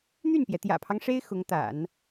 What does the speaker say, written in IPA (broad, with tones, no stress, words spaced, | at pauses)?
n̪y˥˩npjɛ˩ t̪jä̰˨˩pʰɑ˦ŋ ʂe˥ɪ̯ xʊ˧˥ŋt̪a̰˨˩˦n